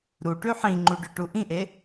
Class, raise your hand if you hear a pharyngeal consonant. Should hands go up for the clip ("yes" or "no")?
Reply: yes